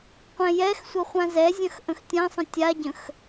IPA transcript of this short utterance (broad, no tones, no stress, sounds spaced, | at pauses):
qʷ ɛ̃ j ɛ x sʷ ə χʷ ã z ɛ zʲ ɐ̃ x ʔ ə̃ x tʲ ã sˤ ə̃ tʲ a ɟ ə̃ x